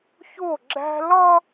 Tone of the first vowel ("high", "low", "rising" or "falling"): falling